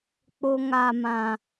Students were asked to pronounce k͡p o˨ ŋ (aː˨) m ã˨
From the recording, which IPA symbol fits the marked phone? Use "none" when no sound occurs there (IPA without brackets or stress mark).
a˨